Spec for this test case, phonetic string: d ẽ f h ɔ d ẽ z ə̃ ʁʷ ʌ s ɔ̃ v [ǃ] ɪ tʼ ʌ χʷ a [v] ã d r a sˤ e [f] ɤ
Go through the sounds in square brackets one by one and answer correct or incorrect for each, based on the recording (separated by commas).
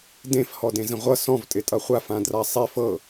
incorrect, incorrect, correct